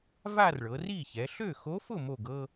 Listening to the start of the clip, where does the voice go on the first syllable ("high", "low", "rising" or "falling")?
falling